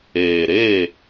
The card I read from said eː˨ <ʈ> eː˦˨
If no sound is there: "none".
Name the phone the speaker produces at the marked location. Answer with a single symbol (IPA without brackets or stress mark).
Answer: ɾ